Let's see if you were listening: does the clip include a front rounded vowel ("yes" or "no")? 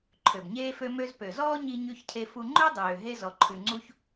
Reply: yes